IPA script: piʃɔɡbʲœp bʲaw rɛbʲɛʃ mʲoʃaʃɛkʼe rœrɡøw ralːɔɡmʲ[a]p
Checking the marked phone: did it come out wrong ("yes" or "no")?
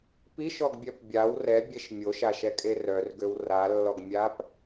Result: no